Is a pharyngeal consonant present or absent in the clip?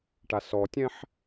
present